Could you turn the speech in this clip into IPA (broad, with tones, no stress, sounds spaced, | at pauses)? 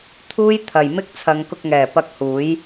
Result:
t̪ʰ uː˥ j t̪ʰ ɐ˨ j m ɪ˥ k̚ t͡sʰ ɐ˨˧ ŋ k ʊ˧ k̚ ŋ ɛː˨˩ p ɐ˧ k̚ h uː˨˥ j